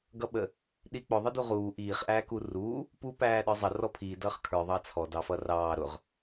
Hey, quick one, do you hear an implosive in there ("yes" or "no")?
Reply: yes